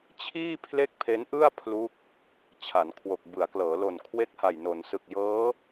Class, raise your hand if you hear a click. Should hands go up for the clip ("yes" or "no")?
no